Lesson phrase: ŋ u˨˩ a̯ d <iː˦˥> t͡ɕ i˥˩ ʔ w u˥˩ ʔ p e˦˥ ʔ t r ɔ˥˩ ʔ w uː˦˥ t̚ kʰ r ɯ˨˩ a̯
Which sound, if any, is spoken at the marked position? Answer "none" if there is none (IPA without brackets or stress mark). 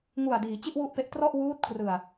iː˩˦